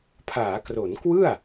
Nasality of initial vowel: oral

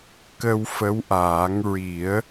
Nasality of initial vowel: oral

